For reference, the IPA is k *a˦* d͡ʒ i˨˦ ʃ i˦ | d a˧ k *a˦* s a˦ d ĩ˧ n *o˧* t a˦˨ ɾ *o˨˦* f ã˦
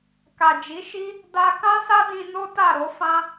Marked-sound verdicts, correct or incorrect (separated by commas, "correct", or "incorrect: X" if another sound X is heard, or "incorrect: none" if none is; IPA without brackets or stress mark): incorrect: a˨, incorrect: ã˦, incorrect: o˦, correct